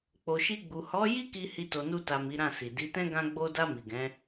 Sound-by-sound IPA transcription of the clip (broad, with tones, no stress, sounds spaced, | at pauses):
k͡p o˨ ʃ i˧ ɡ͡b u˨ h ɔ˨˦ j i˦ k i˧ h i˧ t o˨ n u˧ t a˨ m i˨˦ ɾ ã˦˨ s i˨ d i˨˦ t ɛ̃˦ ɡ ã˧ ɡ͡b o˧ d a˧ m i˨ ɡ ɛ̃˨˦